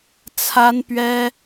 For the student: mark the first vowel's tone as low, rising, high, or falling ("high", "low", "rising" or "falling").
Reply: high